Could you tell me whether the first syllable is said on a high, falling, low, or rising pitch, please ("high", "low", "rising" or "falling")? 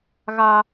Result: high